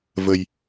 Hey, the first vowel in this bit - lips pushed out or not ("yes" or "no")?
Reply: no